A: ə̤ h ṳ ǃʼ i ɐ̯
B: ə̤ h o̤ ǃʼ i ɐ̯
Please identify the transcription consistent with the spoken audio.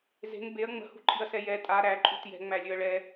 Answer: A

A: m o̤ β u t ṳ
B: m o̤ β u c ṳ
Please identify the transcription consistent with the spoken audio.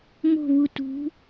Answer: A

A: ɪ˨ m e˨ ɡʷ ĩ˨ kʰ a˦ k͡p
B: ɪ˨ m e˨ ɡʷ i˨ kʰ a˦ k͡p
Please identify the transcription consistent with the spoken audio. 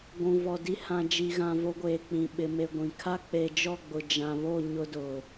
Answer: A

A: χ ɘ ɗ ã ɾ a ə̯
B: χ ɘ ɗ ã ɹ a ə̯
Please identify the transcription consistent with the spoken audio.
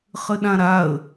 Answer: A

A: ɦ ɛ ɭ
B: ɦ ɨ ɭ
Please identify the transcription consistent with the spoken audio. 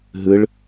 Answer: B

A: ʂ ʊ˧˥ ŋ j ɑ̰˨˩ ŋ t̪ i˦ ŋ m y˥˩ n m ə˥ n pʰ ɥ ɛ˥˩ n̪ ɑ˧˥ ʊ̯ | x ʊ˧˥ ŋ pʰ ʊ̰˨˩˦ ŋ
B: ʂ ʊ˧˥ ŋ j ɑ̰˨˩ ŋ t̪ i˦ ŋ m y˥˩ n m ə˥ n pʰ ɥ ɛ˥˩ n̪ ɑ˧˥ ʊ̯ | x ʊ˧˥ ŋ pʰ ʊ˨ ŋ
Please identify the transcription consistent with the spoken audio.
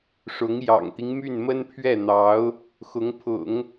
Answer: A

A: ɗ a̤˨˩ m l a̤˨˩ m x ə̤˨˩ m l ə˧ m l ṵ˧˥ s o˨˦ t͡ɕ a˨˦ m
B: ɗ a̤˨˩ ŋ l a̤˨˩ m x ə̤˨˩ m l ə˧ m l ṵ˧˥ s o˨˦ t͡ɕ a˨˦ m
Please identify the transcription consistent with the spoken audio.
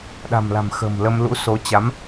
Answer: A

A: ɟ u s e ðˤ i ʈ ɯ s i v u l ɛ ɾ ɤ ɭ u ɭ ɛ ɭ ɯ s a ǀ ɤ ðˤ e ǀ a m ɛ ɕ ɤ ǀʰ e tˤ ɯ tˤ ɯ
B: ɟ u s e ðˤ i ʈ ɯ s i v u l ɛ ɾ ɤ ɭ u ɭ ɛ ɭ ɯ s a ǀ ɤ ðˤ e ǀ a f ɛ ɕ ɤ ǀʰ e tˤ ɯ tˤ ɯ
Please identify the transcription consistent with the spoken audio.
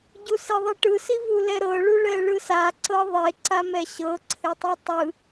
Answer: A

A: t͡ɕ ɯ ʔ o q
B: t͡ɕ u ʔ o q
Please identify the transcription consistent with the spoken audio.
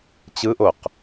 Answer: A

